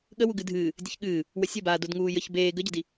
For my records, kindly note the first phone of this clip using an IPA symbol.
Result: ɠ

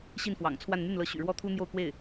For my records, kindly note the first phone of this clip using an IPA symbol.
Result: ɕ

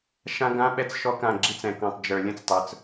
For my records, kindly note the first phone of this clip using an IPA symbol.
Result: ʃ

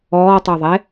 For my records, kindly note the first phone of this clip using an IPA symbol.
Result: ɔː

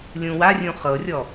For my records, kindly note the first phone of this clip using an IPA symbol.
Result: lʲ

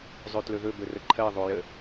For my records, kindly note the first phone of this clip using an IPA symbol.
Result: zˤ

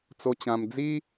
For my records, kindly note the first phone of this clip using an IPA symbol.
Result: t͡s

